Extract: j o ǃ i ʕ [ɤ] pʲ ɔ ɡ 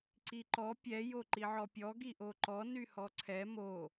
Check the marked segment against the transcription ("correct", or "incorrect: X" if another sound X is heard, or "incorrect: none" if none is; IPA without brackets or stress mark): incorrect: ɔ